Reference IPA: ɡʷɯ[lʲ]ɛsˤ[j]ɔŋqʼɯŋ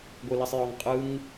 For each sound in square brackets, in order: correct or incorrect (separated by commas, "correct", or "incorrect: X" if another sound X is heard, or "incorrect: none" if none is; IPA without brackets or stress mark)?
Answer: incorrect: l, correct